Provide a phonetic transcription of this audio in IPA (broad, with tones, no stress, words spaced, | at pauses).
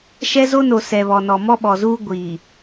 ʃɛ˦zo˦no˨ sɛ˨βɔ˨nɔ˨ mɔ˦ɓɔ˨zuː˦ ɡʷiː˨